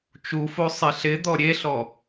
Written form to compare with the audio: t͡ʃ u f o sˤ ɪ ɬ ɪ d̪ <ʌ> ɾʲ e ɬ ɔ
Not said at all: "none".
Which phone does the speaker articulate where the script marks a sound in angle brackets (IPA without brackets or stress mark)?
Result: ɔ